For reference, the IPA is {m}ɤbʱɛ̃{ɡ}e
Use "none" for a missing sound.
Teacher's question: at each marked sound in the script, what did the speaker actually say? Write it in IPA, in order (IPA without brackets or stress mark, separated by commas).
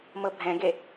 m, ɡ